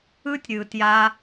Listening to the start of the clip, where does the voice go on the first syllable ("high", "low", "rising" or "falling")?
high